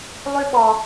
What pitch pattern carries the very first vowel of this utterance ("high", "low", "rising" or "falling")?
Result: high